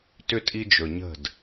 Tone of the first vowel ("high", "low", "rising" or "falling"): high